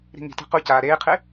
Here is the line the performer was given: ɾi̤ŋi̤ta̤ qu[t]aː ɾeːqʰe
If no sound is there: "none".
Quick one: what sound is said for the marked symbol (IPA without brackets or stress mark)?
c